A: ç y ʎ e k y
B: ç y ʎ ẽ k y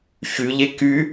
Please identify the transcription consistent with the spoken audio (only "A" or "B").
A